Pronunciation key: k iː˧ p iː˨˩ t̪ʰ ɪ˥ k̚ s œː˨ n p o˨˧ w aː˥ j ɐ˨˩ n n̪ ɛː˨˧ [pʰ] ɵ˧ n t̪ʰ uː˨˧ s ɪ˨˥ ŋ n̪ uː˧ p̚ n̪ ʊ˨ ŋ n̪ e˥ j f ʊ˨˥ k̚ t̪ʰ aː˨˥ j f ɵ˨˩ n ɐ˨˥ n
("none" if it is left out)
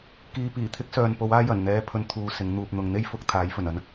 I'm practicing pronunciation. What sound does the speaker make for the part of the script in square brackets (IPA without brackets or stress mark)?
pʰ